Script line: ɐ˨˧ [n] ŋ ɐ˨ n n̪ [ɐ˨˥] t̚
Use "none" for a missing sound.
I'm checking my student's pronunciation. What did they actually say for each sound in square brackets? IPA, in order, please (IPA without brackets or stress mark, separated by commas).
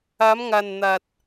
m, ɐ˨